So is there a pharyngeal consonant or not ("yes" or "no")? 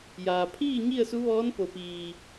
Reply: no